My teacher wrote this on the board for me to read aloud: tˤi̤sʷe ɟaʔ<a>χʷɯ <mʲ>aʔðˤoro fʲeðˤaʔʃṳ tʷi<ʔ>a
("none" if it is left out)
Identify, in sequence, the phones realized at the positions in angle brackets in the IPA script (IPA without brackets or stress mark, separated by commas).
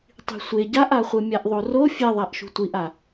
a, mʲ, ʔ